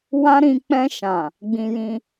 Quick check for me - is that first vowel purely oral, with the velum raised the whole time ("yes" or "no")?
no